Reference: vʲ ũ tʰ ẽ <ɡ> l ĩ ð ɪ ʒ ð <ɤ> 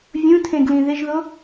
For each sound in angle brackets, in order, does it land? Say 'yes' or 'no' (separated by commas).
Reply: yes, no